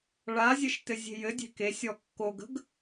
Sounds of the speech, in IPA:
ɭazʲɘʃ tɘzʲe̤jɘdʲe̤ kesʲɔ kːoɡə̤ɡ

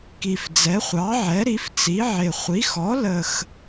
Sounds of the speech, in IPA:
ki˨˩fd͡zɛ˩˥χʷɑ˩˥ ʕɛ˩˥ɾi˩˥ft͡si˩˥ʕɪ˨˩ χʷi˩˥xɔ˩˥lə˨˩x

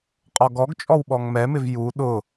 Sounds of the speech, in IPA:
qʼɔɡɔɡt͡ʃʼɔw ɓɔŋmɛmɪv ju ɗʊ

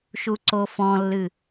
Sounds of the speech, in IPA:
ʃuǀofɔ̃lːɨ

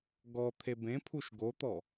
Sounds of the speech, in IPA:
ɡɔ t̪ʰebẽpʰuʃ ɡot̪ɔ

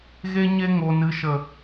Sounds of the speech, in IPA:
ɣe˧ɲe˧ ŋo˨nɨ˨ʃə˨

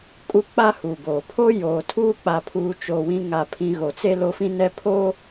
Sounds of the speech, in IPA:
kʼu˦k͡pa˦hu˨boː˨ pʰo˦joː˨tʰuː˦ k͡pa˨pʰuː˨˦t͡ʃo˨ wĩ˦ŋa˦˨pʰĩ˦ ɣo˨t͡se˦ lo˦fĩ˦ nɛ˦pʰoː˦

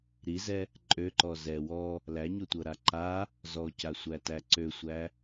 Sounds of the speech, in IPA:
ɾizɛ | ǃʼøǃɔ zɛ wɔ | læɲotʷɤɾa ǃa | zɔcasʷætæ ǀøsʷæ

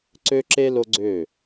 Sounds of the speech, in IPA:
ǀø˦ǁe˦ lo˦ɡ͡ǀø˦˨

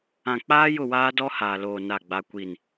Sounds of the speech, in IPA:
ã˨k͡paː˦ jʊ˦˨waː˦dɔ˦ haː˨ loː˨ na˦˨ɡ͡ba˦kʷi˦˨n

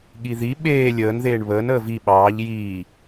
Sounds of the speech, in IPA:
ɠiði ɓeː lʲəːnðeːɳ βəːnəː vi ɓɑːʎ jiː

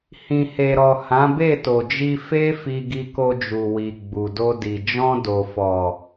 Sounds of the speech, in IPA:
hĩ˨he˨ɾɔ˨ hã˨˦be˦˨to˨d͡ʒi˧ fe˦ fi˧ɡi˧ko˧d͡ʒu˨ wi˨ɡ͡bu˨do˧di˨ d͡ʒɔ̃˧do˨fɔ˨

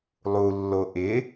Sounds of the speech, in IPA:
lˠulːo ʔɪ

